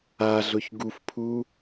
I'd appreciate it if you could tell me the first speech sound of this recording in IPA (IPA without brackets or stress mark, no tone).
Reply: a